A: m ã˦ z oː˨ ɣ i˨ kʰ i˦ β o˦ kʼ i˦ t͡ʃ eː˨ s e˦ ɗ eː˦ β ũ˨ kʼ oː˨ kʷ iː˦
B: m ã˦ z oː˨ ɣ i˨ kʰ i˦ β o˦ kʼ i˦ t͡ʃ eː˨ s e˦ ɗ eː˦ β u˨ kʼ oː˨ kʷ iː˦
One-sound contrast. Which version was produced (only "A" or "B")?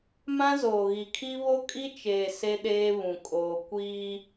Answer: A